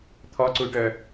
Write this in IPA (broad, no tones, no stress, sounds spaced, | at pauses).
t̪ʰ ɔ ǀ u y̯ ʈ œ